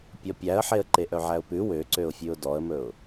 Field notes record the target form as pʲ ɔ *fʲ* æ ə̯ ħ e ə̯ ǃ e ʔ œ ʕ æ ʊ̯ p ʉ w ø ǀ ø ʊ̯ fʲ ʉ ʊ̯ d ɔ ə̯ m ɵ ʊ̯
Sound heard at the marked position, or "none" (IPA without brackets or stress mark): pʲ